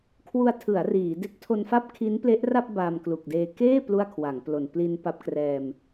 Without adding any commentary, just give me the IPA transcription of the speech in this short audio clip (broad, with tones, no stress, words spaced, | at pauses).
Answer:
kʰwu˧a̯tʰɯ˩˦a̯ riː˩˦ de˦˥k̚tʰo˧nfa˥˩p̚ kʰi˦˥nple˦˥ʔra˥˩p̚ baː˧mklu˨˩k̚deː˧ keː˥˩ plu˥˩a̯kʰwa˩˦ŋplo˨˩n pli˧npa˦˥p̚krɛː˧m